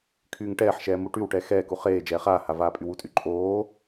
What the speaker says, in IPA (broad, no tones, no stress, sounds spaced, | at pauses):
kʰ yː ŋ ʈ ɛː ħ ʃ ɛː m u ʈ y w ʈ ɛ x ɛː k u χ eː d͡ʒ ɛː χ aː h a v aː pʼ y w u tʼ y ǃʼ oː